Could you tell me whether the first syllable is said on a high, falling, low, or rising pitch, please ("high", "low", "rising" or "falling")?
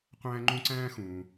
high